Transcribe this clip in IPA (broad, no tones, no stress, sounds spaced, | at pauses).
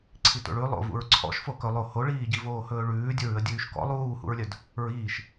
ǀʰ i t o̰ ɭ ʉ lˠ o̰ v ṵ ɹ ǀʰ ɔ̰ ʃ f o k ɵ lˠ o h o ɭ iː ɟ i v oː h ɵː ɭ ʉː dʲ ɵ ɹ ʉ ə̯ dʲ ʉː ʃ k ɔ̰ lˠ uː h ṵ ɹ lʲ œ d | ɹ iː ʃ